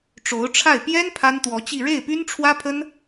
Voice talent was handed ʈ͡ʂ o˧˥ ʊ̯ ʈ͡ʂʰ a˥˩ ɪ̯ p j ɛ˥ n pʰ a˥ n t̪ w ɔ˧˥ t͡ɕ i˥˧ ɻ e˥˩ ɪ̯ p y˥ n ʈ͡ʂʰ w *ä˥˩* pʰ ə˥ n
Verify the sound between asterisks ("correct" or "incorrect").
incorrect